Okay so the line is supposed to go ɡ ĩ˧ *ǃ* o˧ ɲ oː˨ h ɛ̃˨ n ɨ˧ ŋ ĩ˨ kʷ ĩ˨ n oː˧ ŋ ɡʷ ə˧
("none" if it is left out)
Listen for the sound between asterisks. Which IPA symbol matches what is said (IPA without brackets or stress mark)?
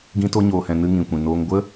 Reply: t